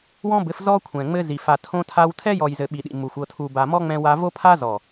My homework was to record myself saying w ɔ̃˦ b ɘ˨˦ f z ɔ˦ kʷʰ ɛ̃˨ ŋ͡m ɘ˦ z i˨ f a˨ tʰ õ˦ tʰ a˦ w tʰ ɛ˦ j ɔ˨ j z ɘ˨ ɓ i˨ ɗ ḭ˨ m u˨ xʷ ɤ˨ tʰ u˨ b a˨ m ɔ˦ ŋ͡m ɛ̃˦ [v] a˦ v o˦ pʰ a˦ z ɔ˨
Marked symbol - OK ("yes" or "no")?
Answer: no